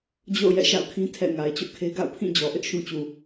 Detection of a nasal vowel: present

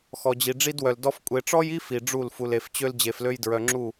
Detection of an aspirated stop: absent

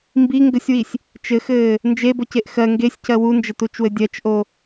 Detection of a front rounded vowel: absent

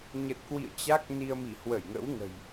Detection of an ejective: absent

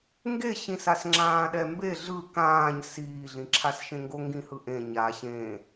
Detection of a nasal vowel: present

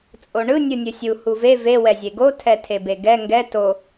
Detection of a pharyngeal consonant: absent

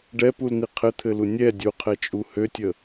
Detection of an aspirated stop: present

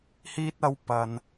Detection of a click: absent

